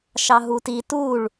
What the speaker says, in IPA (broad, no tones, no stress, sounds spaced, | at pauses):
ʃ ɑ ɦ u t i t u ɭ